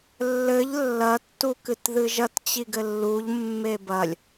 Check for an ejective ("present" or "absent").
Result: absent